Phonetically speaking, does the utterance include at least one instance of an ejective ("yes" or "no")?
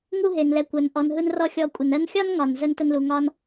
yes